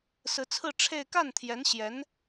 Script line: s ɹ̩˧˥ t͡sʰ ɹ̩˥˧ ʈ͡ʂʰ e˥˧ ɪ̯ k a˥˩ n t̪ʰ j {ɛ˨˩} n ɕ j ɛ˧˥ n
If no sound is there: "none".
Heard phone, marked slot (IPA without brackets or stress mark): ɛ˧˥